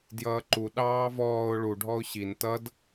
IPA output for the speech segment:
djʌːǃu ɗɑːvɔːʊ̯ ɭu ɖʱɔʊ̯ɕin tʌd

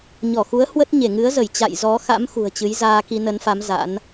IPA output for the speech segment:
ɲɔ˧˩xu˨˦ə̯ hwə˦˥t̚ ɲe˧˩ŋɨ˨˦ə̯zə˧˩j t͡ɕa̰˧˨jzɔ˨˦xa̰˧˥m xṳ˨˩ə̯t͡ɕɨ˨˦j zaː˧ki˧nə˨˦nfa˨˦m za̰˧˥n

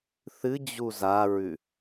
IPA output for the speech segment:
θɨd͡ʑu zaɹʉ

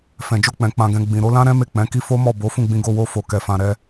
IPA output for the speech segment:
fɛ̃˨d͡ʒo˧k͡pɛ̃˨ k͡pã˧ɡɛ̃˧ ɡ͡bĩ˨ɾo˨˦lã˦ɾɛ̃˦ me˦˨ k͡pɛ̃˨˦ki˦ fo˦mɔ˦˨bo˨˦ fũ˦˨ɡ͡bĩ˧ ɡo˧wo˧ fo˨kɛ˨fã˨ ɾɛ˧

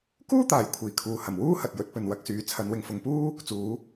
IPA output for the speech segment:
kuː˥t̪aː˨˩j kʷʰiː˨˩ kʰuː˨hɐ˨˩m wuː˥hɐ˨t̚jɵ˨˥t̚ pɵ˨nwɐ˧k̚syː˨ t͡sʰɐ˨˧nwɪ˨ŋfʊ˨ŋpuː˥ | t͡suː˨˥

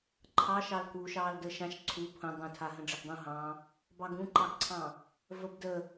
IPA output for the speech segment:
ǃʰɑʃɑlkuːʃ ɑːldəːʃãʃ ǀʰu pʰə̃ dˤũtʰa ɦə̃ɖ͡ʐəɡdˤũ ɦɑ̃ | bɑɡũǃɑɡǀʰɑ̃ | vəbdə

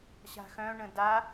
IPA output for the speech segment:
ɕa̤xœ̃ɳə̃ da

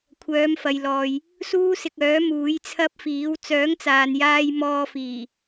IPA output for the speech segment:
kʷʰœː˨˧mfɐ˨jlɔː˨j | suː˥sɪ˧k̚œː˨˥ muː˨˥j t͡sʰɐ˥p̚fiː˨˥w t͡sœː˨˥ŋt͡saː˨njaː˧j mɔː˧fiː˨˩

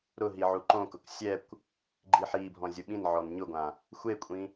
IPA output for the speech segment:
ɾʊɦi ʕuǃõkʊk sʲɛkʷ | ɡ͡ǃiħibʱɔ̃ zʲʊɓĩnʕɔn ɲʊɡʷã | xʷekʷʼĩ

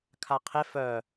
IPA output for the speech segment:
kʰaqʰe fœ

